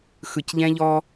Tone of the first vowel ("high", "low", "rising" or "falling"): low